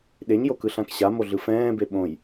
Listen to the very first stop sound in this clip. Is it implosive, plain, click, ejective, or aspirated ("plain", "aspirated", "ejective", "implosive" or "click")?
implosive